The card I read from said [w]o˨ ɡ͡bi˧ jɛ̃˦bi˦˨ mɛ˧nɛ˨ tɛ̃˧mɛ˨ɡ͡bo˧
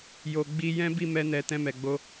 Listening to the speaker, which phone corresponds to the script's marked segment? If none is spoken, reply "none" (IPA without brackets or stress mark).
j